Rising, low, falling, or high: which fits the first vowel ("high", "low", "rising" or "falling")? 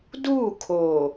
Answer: falling